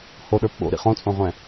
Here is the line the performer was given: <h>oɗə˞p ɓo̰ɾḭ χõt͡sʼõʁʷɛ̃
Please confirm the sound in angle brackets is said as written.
yes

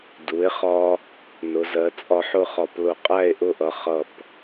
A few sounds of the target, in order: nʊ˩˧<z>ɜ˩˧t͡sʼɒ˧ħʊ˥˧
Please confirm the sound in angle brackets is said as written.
yes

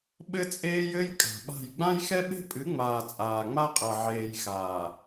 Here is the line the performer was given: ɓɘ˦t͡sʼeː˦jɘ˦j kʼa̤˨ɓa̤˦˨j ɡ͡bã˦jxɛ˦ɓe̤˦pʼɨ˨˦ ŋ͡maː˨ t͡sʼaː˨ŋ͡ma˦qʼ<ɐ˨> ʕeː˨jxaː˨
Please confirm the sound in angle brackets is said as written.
yes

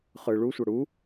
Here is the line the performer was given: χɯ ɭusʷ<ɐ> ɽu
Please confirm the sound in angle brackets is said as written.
yes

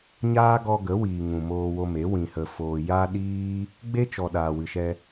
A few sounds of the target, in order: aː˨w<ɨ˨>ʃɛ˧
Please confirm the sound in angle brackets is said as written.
yes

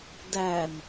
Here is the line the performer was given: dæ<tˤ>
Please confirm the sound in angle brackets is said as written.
no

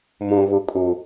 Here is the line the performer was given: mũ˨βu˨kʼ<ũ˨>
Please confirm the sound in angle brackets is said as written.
no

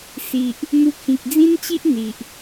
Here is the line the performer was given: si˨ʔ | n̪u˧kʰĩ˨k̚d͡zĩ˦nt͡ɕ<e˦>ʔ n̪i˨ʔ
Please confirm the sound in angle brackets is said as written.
no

